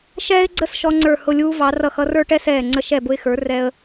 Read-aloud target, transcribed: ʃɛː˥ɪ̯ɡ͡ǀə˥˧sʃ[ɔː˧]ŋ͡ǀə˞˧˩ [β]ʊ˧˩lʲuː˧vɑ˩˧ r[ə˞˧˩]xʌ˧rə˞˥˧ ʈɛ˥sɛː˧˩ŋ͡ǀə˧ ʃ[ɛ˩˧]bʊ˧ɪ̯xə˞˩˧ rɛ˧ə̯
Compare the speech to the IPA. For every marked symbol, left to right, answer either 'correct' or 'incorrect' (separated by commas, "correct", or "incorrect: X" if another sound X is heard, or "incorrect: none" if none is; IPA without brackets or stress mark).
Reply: incorrect: ɔ˧, incorrect: h, incorrect: ʌ˧˩, incorrect: ɛ˧˩